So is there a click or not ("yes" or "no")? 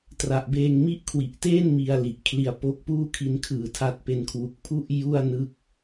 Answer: no